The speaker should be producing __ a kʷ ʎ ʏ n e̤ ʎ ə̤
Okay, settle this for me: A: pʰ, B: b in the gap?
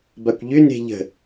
B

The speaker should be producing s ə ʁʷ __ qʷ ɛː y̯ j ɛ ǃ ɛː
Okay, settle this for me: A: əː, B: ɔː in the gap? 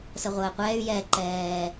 A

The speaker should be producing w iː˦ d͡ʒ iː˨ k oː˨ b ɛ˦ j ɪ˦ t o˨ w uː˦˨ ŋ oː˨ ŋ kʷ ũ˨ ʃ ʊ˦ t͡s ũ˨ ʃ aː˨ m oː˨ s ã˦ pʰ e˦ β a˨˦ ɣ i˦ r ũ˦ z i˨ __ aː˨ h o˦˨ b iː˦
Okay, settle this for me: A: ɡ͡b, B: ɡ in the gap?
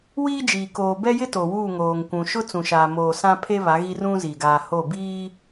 B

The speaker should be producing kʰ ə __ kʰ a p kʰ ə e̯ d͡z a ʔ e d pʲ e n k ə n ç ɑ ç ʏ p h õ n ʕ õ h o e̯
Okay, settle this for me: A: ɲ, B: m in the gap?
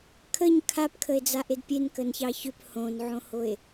A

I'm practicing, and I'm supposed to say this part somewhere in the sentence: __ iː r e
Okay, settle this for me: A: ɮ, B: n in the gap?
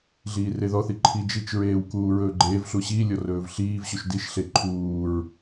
A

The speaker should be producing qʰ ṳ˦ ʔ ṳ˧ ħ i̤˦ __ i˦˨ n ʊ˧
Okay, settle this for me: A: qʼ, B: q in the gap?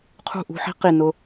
B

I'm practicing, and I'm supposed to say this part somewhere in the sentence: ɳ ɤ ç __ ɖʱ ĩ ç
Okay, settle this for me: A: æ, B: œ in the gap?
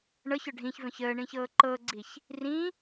B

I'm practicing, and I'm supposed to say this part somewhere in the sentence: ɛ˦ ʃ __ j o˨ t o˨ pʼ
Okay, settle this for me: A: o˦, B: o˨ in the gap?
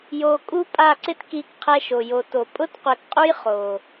B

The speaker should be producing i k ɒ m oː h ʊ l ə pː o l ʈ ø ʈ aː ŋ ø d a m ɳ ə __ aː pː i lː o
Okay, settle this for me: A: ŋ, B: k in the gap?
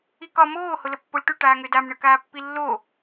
B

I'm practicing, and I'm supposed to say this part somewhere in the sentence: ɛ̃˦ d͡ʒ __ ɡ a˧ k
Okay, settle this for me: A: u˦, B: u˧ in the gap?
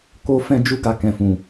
A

